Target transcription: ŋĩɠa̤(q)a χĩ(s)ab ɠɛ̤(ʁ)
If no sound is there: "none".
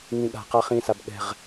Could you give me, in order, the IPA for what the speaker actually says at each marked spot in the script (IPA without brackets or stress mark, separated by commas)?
q, s, ʁ